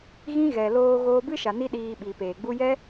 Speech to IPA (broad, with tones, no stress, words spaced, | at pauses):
ɣĩ˦ɣɛ˨ loː˧ ɣoː˧bɨ˦ʃa˨ ni˦ ɗiː˧ ɓi˨peː˨ɡ͡bu˦ jɛ˦